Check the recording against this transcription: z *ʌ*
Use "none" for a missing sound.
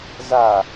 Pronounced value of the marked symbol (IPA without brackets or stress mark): a